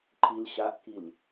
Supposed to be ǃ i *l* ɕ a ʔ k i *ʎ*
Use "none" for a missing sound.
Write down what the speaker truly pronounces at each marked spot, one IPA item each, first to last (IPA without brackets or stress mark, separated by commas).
l, l